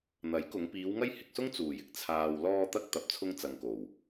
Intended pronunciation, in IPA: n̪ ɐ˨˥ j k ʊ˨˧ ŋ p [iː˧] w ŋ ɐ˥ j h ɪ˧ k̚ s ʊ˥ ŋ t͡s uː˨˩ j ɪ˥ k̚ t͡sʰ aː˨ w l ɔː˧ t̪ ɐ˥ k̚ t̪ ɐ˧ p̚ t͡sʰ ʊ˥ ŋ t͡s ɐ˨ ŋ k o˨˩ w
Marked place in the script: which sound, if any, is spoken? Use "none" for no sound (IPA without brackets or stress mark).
iː˨˧